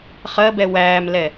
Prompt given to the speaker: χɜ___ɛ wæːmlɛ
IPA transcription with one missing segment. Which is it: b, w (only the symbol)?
b